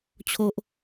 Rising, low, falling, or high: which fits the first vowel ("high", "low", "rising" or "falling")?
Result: high